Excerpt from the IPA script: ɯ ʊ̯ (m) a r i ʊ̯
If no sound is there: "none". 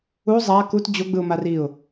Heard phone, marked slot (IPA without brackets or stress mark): m